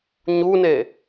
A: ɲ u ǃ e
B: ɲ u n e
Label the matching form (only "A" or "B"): B